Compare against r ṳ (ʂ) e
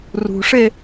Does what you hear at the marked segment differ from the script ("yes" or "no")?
no